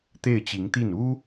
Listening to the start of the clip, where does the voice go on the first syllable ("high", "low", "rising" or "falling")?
falling